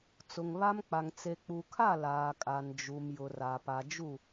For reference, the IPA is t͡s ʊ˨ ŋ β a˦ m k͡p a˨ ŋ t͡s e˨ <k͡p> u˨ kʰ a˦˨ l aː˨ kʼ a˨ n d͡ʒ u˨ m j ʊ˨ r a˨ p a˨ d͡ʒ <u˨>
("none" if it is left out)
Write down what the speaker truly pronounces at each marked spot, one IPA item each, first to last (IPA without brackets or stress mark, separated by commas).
k͡p, u˦˨